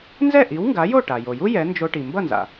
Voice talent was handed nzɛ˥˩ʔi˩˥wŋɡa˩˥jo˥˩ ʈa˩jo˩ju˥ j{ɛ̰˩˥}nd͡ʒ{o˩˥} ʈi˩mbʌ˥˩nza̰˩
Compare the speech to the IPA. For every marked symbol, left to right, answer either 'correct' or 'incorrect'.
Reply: incorrect, incorrect

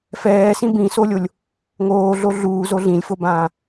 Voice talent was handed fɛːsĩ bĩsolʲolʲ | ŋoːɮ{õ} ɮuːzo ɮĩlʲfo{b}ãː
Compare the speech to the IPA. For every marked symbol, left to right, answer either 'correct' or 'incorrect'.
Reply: incorrect, correct

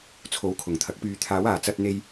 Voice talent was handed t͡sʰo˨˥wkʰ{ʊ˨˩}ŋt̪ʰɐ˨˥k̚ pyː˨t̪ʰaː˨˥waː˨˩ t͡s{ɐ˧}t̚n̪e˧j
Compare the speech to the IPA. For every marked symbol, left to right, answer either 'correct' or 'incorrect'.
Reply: correct, correct

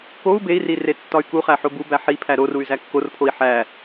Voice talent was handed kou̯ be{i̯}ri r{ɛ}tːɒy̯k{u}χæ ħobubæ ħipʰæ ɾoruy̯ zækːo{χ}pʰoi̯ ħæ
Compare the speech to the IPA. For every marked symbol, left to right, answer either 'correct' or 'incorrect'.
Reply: correct, incorrect, correct, incorrect

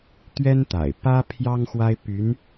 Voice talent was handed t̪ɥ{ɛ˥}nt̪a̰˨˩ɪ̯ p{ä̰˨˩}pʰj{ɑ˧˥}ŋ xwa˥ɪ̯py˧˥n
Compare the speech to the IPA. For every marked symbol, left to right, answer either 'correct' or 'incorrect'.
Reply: correct, incorrect, incorrect

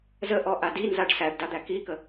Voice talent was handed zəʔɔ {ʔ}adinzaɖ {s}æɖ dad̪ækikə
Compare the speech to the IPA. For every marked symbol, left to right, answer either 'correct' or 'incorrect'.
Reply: correct, correct

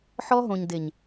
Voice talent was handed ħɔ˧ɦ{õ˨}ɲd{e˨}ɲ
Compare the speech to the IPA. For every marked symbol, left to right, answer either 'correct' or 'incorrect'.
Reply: correct, correct

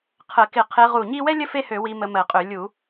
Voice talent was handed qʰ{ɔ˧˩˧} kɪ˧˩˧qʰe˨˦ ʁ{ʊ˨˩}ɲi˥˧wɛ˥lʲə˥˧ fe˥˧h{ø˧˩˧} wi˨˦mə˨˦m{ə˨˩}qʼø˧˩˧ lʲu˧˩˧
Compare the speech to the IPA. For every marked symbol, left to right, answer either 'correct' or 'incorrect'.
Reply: incorrect, incorrect, correct, incorrect

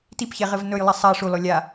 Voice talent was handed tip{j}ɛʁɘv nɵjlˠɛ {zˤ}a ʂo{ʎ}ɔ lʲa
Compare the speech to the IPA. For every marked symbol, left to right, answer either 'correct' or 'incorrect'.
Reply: incorrect, incorrect, incorrect

